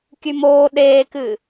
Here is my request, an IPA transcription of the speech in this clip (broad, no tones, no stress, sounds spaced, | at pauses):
kʲ ʉ m oː ɗ eː k ɨː